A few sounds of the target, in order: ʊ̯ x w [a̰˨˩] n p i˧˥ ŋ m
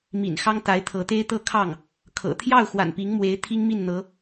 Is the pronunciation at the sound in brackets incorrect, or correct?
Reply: correct